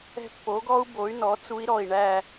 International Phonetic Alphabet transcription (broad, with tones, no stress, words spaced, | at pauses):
ɛ̤˦˨pːo˩˥ɡɔ˦˥u̯ bo˩˥y̯nɔ˩˥ t͡su˦˥i̯ɾɔ˦˨i̯ ɳæ˦˨